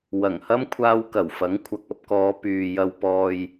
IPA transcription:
wɐ˨˩ŋ hɐ˥mkʷʰaː˧wkɐ˨˩w fɐ˨˥ŋkʷʰɐ˨k̚ɐ˧p̚kɔː˨˧ pyː˨ jɐ˨wpɔː˨j

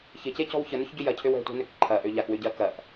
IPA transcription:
çɪcecɔ̤w çənʏçɟʏ jɐcʰøw ɛ̤tʷɛ̤nøk ǃʰɐʔø ʎakwʏɟɐ kɐʔ

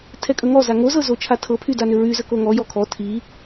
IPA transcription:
tʰɛkʼəŋɔza ŋozɤ zot͡ʃʰatʰɤpʰy danʏɹyzə koŋɔjɔ kʰɔ tʰi

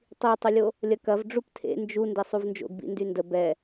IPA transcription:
tˤitˤəlʲo | lʲɐkɐv ɖ͡ʐuptʰḛ nd͡ʒu ndesˤuvnd͡ʒo̰ɡbḭ ndyndə bɛ

